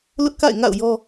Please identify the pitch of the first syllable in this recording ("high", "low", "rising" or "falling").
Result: high